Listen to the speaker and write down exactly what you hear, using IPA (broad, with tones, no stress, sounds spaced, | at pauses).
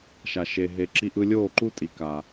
ʃ a˨ ʃ e˨ ɦ e˨ ǁ i˧ ʔ ɯ˧ lʲ oː˦˨ ǃ u˦ tʼ i˨ k a˨